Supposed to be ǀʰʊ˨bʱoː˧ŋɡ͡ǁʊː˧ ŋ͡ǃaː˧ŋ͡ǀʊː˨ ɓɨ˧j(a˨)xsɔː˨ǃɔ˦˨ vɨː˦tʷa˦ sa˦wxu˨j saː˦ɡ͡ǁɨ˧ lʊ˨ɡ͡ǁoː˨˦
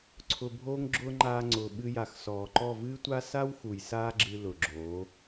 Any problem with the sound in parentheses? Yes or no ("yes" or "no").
no